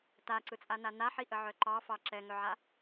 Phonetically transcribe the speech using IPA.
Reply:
taǀɯt͡sʼana naħiʔəʕœ ǃɑfɑ ǁɛŋœʕa

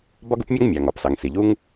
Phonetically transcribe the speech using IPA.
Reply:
bɒ˥ɡu˥pmʲɔ˥ŋ mʲɑ˩ŋ ɒ˩psɑ˩ŋsi˩ʎu˥ŋ

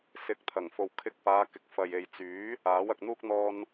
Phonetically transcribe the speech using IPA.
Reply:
sɪ˨˥k̚t̪ʰɐ˨˩ŋfo˨wkʰɪ˧k̚ paː˨˧kɪ˨˥k̚ fɐ˨je˨jt͡syː˨˥ | aː˨˥wɐ˨k̚n̪uː˥k̚ n̪ɔː˧n

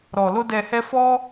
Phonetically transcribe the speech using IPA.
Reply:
ɾɔ˨lo˧ dɛ˨hɛ˧ fɔ˦

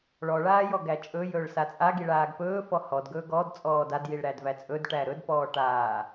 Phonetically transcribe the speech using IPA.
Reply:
ɭɔɭaː jɔɡæt͡ʃʼɵjɵːɭ sat͡sʼaɡi ɭaːɡpɵːfɔ hɔdɡɵː ɡɔd t͡sʼɔːdadjiɭ ɾædvæt͡sʼɵdʈæ ɾɵdpɔː ʈaː

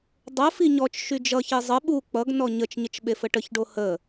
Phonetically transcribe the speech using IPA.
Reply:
dˤəfi ɲɔt͡ʃ ʃyd͡ʒʌçi zˤə ɓu k͡pʌɡnɔ ɲət͡ʃɲət͡ʃ ɓefəʈəçɖo hə

